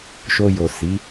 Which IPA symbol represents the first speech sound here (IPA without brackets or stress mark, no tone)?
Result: ʃ